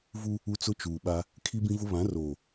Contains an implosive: yes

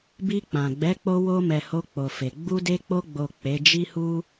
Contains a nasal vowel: yes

